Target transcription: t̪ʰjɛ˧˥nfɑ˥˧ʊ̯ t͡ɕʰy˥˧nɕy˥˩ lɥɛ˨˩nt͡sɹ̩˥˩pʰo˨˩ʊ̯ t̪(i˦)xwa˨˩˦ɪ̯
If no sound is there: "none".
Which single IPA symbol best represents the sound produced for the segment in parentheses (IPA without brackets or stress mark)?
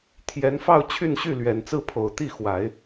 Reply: i˥˩